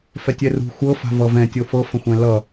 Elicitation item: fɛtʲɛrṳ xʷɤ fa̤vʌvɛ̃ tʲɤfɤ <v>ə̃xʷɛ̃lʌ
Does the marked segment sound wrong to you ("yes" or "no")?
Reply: yes